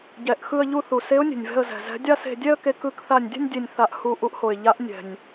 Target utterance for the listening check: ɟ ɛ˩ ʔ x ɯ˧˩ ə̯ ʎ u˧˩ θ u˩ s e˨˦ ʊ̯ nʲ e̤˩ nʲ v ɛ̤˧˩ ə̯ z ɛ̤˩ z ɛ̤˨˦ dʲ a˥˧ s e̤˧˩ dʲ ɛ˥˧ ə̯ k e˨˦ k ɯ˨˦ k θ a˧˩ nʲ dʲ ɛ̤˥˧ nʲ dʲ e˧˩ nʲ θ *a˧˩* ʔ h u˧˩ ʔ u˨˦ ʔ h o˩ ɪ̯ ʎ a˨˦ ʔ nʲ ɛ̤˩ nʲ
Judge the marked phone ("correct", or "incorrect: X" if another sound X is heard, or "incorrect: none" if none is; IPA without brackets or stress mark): correct